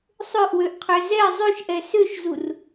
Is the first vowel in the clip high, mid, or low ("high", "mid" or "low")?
mid